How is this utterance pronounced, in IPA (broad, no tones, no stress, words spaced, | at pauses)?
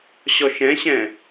ɕɔʃɛ̃ɕɛ̃